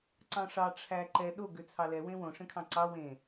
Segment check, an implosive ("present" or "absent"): present